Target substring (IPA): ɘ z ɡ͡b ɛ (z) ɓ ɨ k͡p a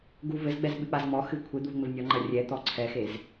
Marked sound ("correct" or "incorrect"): correct